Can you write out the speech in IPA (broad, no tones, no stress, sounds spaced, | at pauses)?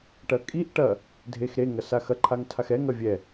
ʈ ɐ kʼ i ʔ ʈ ɐ | dʱ e x ɾ e ŋ ɐ s a x ɐ ǃʰ a ŋ tʰ a x ɛ ŋ ɐ vʲ ɛ